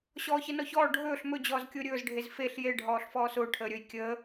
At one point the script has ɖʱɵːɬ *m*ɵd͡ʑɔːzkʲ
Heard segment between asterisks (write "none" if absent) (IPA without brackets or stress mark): m